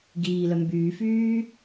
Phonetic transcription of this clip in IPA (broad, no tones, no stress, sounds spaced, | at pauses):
ɡ iː l œ m b yː f yː